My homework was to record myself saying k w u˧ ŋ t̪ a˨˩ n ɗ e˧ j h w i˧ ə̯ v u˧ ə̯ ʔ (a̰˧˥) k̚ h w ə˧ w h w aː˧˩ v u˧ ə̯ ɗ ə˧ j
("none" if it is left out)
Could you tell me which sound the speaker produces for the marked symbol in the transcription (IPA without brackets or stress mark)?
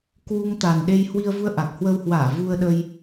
a˨˩